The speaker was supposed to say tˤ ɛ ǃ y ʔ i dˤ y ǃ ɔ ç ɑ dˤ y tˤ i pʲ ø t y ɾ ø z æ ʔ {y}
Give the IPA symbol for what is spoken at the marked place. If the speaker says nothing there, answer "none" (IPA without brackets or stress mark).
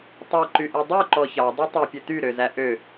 ø